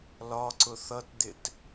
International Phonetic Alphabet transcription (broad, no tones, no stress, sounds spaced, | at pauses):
l ɒ ǀ ʊ θ ʌ t d̪ ɪ t